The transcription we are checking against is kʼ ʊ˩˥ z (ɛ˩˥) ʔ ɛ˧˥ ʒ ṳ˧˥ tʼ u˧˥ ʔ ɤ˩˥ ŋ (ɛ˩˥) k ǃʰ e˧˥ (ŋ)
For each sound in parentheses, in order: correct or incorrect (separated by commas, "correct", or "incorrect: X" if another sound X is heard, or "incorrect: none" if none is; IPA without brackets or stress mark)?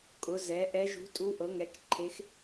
correct, correct, incorrect: x